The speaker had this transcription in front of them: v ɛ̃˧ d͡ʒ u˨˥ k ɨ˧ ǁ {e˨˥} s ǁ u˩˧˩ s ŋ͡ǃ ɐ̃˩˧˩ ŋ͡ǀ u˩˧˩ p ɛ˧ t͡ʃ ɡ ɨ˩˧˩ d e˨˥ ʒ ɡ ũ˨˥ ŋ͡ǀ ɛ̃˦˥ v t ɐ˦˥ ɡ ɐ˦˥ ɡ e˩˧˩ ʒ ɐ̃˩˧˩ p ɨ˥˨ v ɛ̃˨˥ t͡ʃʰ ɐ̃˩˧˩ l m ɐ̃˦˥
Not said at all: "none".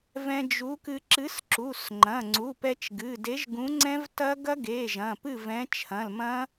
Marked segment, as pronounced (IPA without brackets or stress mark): ɨ˨˥